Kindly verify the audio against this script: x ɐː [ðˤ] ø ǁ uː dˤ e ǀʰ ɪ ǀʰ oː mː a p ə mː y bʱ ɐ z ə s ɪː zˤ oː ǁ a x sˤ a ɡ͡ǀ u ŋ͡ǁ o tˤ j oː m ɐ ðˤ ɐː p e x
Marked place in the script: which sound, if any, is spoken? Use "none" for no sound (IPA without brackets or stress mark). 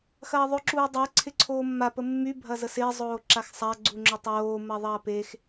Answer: ðˤ